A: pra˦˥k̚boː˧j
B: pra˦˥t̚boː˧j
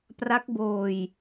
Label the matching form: A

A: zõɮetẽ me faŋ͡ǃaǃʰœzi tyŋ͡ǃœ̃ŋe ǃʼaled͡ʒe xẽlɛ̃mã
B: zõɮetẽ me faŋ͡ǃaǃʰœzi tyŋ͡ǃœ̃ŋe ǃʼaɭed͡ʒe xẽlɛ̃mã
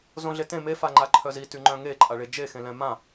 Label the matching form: B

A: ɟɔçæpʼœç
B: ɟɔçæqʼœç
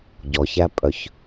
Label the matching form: A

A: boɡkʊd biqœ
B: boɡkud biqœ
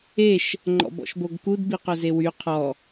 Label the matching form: B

